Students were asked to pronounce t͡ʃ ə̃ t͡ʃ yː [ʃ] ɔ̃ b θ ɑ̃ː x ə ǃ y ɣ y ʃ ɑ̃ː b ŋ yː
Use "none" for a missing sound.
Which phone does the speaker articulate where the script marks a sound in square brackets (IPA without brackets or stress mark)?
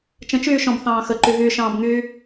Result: ʃ